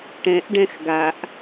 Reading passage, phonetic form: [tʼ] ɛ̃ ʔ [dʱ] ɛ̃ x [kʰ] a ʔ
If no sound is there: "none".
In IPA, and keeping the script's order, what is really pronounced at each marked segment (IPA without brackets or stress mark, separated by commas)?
ʈ, ɖ, ɡ